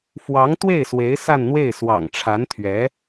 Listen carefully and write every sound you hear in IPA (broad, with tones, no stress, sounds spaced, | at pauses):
f w ɑ˧˥ ŋ t̪ w e˥˩ ɪ̯ s w e˧˥ ɪ̯ s a˥˧ n n̪ w e˥˩ ɪ̯ s w ɑ̰˨˩ ŋ ʈ͡ʂʰ a˧˥ n t̪ʰ ɥ ɛ˧˥